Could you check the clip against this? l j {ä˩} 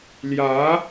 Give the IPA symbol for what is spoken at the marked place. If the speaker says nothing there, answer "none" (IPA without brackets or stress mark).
ä˧˥